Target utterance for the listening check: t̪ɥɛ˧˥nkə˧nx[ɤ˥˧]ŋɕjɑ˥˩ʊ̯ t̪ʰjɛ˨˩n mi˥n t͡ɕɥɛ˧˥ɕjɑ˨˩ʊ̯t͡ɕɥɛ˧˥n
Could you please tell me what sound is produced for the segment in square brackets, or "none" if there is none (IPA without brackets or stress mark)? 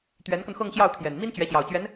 ɤ˥˧